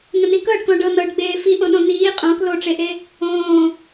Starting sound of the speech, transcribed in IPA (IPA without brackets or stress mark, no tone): ŋ